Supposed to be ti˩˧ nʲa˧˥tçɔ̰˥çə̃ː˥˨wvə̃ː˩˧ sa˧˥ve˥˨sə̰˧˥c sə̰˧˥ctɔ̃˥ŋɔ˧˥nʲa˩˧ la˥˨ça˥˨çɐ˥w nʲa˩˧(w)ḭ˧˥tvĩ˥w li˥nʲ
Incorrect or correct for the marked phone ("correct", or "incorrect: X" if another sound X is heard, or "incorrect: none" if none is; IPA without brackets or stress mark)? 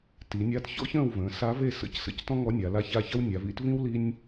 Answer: incorrect: v